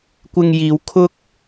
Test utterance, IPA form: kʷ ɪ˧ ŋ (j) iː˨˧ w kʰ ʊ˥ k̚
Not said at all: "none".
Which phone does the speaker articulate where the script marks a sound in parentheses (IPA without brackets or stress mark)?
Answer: j